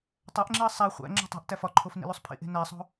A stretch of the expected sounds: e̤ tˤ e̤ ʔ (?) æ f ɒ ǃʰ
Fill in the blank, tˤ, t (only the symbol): t